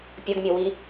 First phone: pʲ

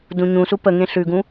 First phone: d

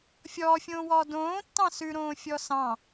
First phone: fʲ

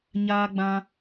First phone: ɲ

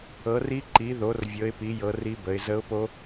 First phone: ɤ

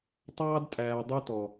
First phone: tˤ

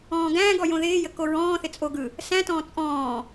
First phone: ɔ̃ː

